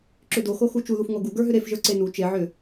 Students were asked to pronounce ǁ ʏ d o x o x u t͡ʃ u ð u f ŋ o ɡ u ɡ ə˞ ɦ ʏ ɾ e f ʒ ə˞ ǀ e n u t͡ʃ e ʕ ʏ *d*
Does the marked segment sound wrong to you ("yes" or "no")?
yes